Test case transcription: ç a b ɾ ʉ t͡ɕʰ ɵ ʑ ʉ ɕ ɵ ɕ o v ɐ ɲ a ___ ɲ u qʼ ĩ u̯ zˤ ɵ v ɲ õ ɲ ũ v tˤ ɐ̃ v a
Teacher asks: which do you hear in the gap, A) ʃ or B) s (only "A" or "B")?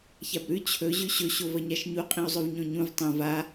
A